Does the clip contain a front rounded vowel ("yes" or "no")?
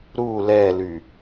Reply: yes